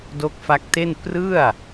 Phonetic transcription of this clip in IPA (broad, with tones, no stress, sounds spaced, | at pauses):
d o˦˥ k̚ f a˦˥ k̚ t e˥˩ n p r ɯ˥˩ a̯